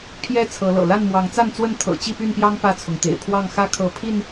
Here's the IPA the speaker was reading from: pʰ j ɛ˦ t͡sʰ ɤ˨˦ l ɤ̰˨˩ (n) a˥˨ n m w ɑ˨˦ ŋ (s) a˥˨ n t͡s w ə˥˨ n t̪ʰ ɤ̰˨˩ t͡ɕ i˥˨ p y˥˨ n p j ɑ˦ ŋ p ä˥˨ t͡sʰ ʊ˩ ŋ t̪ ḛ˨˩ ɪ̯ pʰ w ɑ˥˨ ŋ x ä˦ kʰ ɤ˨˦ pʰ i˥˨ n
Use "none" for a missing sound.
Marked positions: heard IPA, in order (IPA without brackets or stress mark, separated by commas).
l, t͡s